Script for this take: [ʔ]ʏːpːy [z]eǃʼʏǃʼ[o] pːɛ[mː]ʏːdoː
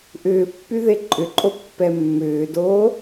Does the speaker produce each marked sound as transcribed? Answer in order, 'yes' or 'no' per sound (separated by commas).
yes, no, yes, yes